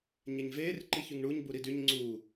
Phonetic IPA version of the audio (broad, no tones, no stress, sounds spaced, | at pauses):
ɲ e ɲ v eː r ǃ i ç y ŋ ɳ u ɲ b u ɾ i d y ɲ ŋ͡ǀ uː